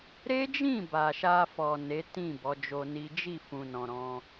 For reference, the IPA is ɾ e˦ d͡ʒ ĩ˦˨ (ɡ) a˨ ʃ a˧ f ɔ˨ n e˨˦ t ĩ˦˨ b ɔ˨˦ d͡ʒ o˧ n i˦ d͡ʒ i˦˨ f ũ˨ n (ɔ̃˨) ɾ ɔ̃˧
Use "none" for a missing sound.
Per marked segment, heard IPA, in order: b, ɔ̃˨

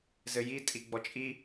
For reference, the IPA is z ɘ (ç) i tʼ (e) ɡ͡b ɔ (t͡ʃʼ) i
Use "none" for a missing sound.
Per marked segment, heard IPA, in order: j, i, t͡ʃʼ

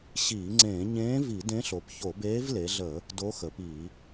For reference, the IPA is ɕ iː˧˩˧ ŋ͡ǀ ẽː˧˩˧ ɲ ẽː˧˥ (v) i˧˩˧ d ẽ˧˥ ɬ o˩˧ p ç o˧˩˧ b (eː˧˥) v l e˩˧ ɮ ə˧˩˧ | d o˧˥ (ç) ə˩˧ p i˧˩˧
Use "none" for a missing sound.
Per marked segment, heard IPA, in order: v, eː˧˥, x

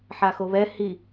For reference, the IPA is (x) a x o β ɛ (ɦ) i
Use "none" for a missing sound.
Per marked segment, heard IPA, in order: ħ, h

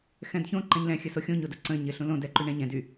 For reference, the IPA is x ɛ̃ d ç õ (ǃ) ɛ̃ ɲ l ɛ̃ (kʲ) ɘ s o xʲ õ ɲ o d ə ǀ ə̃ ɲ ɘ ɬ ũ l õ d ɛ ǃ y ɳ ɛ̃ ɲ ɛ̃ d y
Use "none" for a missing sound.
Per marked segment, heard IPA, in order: ǃ, xʲ

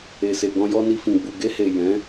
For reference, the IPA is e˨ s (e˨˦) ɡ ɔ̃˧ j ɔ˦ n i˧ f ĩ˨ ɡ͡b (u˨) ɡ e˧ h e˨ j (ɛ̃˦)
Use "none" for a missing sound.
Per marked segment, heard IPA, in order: e˨, u˨, ɛ̃˨˦

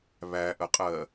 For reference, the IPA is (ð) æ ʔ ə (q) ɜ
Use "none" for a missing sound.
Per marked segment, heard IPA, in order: β, qʼ

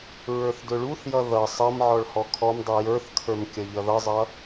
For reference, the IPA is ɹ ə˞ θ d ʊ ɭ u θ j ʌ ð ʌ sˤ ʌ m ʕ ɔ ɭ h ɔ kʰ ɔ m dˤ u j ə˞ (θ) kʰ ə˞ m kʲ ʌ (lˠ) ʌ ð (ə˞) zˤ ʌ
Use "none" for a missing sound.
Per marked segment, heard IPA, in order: θ, ʎ, ʌ

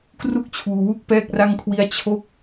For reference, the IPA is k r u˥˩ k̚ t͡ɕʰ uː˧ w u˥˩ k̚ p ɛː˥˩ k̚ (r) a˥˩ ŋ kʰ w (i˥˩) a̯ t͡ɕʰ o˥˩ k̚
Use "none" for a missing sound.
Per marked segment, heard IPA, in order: r, i˥˩

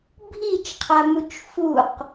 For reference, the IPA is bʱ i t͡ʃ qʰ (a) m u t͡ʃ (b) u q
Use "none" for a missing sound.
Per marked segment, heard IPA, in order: a, f

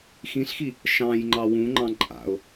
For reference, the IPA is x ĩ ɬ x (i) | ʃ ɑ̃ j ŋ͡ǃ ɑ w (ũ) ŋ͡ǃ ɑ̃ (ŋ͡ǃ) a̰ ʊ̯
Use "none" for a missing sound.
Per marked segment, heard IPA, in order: i, ũ, ǃʼ

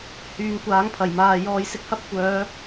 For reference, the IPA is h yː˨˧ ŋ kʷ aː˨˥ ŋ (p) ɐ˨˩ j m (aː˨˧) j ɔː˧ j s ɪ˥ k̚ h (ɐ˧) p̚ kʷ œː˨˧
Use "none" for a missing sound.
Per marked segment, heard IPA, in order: pʰ, aː˨, ɐ˥

